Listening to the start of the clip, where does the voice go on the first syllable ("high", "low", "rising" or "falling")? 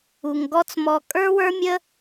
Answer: low